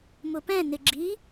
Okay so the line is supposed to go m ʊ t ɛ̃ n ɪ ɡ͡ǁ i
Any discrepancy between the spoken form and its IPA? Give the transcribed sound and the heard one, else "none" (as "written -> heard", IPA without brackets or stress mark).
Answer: t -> p